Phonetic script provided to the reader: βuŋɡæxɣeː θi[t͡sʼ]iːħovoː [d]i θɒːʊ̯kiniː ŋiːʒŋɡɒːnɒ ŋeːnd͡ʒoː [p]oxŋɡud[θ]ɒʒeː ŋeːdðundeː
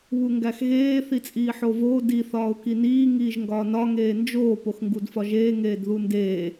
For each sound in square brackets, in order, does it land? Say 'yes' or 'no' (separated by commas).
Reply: yes, yes, yes, no